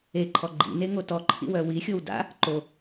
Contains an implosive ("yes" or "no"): no